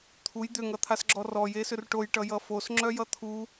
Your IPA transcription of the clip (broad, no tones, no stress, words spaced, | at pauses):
t̪ʰuj d̪ʏŋʌt̪ʰasɡ͡ǁɔ rɔjesʏr ʈojʈʌjʌ fosŋ͡ǁœjʌ t̪ʰu